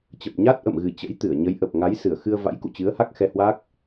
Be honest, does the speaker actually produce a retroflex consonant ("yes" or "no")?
no